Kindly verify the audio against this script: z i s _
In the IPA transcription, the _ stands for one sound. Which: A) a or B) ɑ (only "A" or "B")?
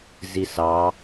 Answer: B